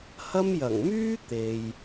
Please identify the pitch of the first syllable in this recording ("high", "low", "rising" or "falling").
high